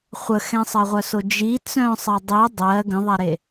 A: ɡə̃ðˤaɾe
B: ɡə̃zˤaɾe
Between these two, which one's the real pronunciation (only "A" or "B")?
A